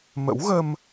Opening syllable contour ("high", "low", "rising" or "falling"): rising